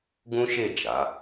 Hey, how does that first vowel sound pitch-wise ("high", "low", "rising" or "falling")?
high